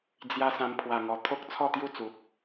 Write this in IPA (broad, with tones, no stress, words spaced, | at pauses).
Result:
d͡zja˧ sã˧m pʰwa˨˩ŋɔ˨˩ t̪ʰo˦k̚t͡sʰɔ˥˧t̪ju˥˧t͡su˨p̚